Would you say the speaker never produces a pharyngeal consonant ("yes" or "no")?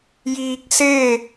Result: yes